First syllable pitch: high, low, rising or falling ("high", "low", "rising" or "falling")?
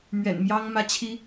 low